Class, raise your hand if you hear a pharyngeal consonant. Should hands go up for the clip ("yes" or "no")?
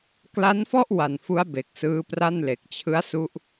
no